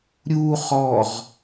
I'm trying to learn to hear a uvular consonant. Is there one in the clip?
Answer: yes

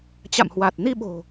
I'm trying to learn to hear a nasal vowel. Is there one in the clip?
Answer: no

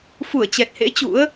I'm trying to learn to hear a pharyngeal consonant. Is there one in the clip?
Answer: no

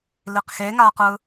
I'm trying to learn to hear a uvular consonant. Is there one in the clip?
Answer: yes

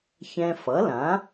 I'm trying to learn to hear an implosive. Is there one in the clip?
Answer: no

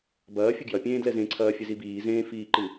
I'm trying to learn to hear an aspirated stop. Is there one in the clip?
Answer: yes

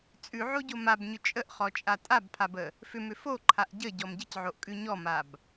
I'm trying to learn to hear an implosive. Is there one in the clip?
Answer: no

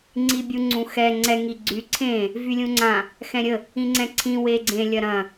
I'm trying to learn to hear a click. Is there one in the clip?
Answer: yes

